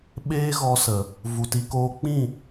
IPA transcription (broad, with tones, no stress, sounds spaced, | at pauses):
ɓ eː˦ ɣ ɔ˧ s ə˨ | v u˨ t i˧ k oː˦ k͡p ĩ˦˨